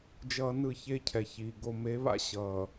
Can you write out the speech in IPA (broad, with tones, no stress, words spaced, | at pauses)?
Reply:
d͡ʒʌː˨ nɯ˦˨çeː˦cʰɛ˨çiː˨ ɡo˨me˨˦βa̰˦ ɕʌː˨